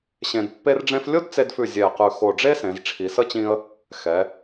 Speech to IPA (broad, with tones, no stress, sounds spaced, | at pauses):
ɕ ẽ˧ d pː e˥ r ɖ͡ʐ ẽ˥ f lʲ o˥ d t͡s e˧ d f ʉ˧˩ zʲ ɛ˧˩ ə̯ q ʉ˧˩ x o˧˩ ɖ͡ʐ e˥ s ẽ˩˧ z ʈ͡ʂʰ i˩˧ s ə˥˧ t͡ɕ ĩ˧ ə̯ | x ɛ˩˧